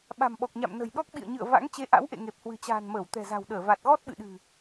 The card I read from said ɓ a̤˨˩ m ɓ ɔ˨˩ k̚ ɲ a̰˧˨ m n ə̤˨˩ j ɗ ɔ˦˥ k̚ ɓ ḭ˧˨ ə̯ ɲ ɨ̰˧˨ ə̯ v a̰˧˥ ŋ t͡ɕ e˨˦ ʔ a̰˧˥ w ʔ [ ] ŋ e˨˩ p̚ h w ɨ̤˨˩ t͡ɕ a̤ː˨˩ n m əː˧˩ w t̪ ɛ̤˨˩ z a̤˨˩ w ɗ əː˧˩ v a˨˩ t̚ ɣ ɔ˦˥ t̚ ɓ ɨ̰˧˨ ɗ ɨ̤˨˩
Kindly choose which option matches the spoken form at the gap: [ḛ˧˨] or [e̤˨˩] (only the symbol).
ḛ˧˨